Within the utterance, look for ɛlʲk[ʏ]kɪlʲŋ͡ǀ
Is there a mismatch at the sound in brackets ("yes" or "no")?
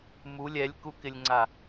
yes